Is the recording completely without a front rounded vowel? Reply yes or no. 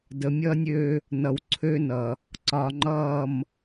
no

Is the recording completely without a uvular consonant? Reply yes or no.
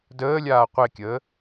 no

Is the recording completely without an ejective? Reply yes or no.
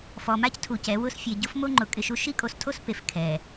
no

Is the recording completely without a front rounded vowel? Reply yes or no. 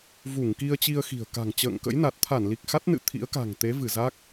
yes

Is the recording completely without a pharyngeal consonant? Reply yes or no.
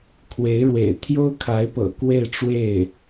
yes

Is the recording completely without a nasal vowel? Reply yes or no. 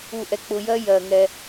yes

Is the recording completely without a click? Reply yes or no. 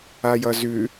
yes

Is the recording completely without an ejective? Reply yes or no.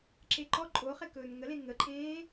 no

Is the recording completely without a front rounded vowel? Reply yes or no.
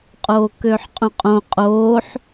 no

